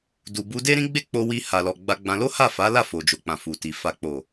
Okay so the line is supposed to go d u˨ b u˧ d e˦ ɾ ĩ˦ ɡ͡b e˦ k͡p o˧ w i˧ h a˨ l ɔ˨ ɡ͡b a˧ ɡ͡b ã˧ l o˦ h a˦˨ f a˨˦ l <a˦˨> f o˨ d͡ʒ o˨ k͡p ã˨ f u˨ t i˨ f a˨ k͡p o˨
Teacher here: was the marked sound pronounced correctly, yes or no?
yes